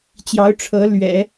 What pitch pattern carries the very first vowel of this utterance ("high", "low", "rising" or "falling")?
rising